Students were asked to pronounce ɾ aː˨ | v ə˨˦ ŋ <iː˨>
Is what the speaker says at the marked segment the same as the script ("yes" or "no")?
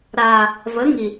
no